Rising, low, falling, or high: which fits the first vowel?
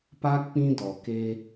high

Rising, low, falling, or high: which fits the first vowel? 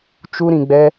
high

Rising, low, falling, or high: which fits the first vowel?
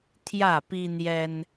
falling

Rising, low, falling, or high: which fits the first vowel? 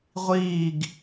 falling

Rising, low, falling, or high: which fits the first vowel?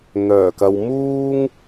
low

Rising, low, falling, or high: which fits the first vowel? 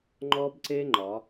high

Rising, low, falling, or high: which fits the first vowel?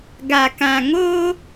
low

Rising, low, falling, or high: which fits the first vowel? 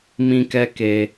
high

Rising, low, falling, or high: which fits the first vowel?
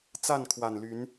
falling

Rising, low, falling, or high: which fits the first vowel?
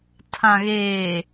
low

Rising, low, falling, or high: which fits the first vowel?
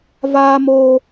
high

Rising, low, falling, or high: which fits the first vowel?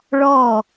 falling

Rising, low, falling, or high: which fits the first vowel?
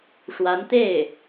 rising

